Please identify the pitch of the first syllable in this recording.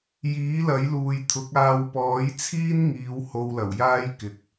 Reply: rising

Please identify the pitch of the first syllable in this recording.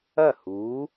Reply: falling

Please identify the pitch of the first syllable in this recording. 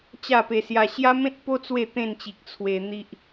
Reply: falling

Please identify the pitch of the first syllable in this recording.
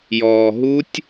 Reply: low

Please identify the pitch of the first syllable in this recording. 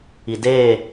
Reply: low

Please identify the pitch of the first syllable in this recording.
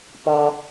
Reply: high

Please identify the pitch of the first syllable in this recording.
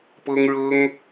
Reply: high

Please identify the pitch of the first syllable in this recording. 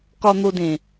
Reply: low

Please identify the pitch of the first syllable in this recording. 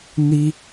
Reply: high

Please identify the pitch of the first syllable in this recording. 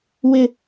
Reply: high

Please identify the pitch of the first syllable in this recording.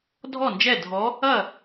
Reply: falling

